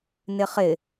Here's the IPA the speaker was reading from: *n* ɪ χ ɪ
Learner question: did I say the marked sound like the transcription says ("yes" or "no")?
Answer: yes